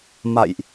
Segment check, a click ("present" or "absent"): absent